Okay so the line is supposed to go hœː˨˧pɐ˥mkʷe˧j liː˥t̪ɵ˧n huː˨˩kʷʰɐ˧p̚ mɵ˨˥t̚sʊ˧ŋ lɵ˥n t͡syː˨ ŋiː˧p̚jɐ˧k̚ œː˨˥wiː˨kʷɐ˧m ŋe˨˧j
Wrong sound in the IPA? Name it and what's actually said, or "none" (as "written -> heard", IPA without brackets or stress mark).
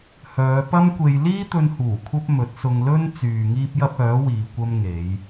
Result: k̚ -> p̚